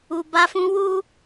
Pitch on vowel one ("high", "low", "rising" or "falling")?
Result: low